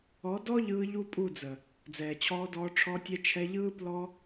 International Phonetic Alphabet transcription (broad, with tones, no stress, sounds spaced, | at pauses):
ɔ˨˦ d ɔ˦ ʎ ɯː˧ ʎ u˧ pʼ u˦˨ d͡z ə˨ | d͡z ɛː˨ t͡ɕʰ ɔː˧ d ɔː˧ ʈ͡ʂʰ ɔ˧ tʲ ɛ˧ t͡ʃʰ ɛ˧ ʎ ɯː˦ p l ɔ˦